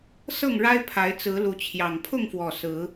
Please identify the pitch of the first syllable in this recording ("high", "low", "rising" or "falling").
falling